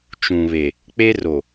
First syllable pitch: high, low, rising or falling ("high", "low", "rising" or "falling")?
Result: low